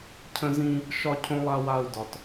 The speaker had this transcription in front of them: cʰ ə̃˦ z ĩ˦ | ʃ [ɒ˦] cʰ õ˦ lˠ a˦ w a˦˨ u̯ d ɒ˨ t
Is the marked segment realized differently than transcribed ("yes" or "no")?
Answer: no